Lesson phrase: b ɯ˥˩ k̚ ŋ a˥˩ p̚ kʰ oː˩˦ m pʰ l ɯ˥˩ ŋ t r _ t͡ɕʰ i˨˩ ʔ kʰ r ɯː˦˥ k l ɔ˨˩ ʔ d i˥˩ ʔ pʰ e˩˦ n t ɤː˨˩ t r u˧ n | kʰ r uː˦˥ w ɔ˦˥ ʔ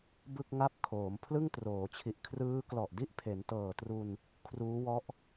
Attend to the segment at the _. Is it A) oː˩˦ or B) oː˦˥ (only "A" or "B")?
A